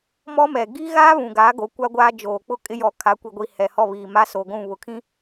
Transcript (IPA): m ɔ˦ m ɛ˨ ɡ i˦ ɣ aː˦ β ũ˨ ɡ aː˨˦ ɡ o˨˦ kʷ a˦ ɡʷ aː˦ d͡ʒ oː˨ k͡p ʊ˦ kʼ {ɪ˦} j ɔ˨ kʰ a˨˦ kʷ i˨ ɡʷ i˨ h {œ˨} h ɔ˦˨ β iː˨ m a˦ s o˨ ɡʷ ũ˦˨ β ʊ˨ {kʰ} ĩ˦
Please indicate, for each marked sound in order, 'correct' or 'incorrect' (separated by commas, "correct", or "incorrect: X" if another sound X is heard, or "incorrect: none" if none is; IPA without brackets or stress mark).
correct, incorrect: ɛ˨, correct